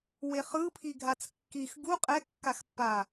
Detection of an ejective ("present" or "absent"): present